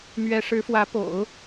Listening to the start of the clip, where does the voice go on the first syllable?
rising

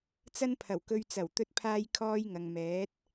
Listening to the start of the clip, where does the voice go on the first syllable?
high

